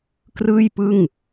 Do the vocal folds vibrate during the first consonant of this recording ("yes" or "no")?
no